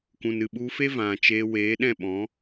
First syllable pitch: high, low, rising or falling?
low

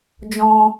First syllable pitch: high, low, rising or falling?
high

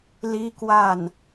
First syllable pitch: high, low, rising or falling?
high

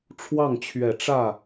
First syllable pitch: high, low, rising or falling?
falling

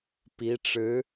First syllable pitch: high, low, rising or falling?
rising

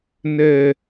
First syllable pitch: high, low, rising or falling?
high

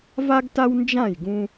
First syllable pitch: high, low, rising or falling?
high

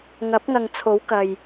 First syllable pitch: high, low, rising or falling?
rising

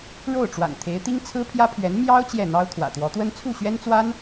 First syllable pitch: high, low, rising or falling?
falling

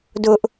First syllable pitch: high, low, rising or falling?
high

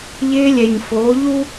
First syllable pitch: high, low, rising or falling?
high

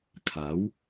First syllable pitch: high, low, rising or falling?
rising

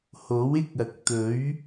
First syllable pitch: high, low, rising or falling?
rising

